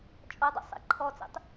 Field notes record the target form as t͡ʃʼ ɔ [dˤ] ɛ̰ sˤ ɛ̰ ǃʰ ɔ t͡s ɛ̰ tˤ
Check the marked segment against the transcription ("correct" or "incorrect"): correct